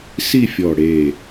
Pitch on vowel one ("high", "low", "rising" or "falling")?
falling